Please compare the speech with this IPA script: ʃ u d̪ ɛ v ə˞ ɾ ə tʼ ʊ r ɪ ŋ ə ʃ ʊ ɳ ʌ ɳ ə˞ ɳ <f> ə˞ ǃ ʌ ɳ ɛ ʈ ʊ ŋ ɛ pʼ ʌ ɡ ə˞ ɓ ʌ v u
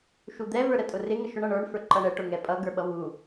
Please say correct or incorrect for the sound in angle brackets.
correct